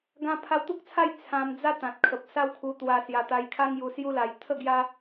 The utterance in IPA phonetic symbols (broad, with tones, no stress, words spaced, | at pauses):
ɡã˧pʰa˧wt̪u˦k̚t͡sʰa˥˧j t͡sʰã˧md͡za˦ t̪ã˨t̚kʰə˨p̚ sa˦wkʰu˧t̪wa˧sja˧ t̪a˧jkʰa˦ŋ ju˧sju˦la˧j t̪ʰə˥˧ɡja˦